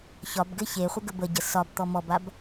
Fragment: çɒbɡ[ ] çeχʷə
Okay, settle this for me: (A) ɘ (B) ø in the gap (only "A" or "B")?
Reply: A